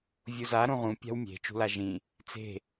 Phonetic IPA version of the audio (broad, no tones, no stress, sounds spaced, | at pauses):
vʲ u z a ɾ õ ʁ ũ pʲ a̤ w mʲ e̤ t͡ʃ ṳ l a ʒ ĩ | t͡s e̤